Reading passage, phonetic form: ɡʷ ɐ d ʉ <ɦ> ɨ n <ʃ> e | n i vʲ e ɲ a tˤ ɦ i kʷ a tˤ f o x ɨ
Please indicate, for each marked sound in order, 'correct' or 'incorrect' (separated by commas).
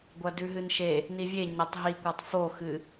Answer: correct, correct